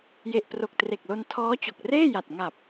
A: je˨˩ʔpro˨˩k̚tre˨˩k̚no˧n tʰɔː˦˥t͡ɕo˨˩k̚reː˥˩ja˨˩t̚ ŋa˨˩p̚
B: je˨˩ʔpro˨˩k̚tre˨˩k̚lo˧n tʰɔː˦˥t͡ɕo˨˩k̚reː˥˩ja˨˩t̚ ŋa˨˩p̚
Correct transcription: B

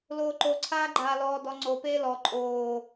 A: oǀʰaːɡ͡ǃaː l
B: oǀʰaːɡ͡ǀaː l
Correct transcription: A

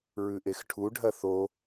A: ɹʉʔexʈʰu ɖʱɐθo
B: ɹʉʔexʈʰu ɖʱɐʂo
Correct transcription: A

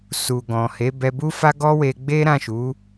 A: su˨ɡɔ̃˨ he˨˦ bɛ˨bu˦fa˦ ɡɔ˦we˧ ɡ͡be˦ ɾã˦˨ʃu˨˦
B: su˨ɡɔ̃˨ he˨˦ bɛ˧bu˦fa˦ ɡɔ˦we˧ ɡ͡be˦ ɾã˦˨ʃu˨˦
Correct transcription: B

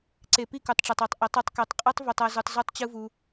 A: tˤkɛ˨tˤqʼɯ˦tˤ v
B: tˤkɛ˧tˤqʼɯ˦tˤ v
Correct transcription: A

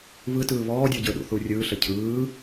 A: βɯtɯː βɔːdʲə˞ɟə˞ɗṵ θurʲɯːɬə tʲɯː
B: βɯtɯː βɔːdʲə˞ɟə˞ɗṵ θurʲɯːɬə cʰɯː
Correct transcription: B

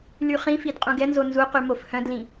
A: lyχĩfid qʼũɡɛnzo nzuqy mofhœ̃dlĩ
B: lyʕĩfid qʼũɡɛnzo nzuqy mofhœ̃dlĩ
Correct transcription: A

